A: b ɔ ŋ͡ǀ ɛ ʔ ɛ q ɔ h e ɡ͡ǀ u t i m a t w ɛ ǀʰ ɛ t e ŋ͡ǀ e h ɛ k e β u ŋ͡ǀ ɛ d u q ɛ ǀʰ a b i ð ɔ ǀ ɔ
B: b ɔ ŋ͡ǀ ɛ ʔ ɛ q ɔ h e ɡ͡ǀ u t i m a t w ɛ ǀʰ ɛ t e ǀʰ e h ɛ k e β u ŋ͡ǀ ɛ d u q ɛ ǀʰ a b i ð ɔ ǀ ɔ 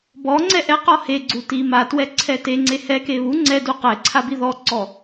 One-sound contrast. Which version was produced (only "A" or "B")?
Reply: A